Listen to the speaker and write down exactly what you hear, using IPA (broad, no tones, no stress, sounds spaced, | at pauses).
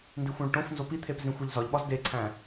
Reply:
n d i xʷ õ ɭ ʈ õ f n z o p i t̪ʰ e p z ĩ xʷ e ʎ z ɒ ʎ ɓ ɒ z d e ǀʰ æ̃